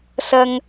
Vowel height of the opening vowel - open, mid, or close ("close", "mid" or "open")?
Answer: open